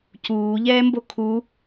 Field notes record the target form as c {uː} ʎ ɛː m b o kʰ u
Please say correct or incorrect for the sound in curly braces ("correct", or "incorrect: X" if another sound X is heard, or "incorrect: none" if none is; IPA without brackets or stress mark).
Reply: correct